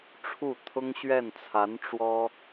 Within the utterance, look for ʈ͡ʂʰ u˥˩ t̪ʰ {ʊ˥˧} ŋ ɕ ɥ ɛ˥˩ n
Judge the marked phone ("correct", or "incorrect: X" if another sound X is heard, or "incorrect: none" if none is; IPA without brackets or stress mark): incorrect: ʊ˥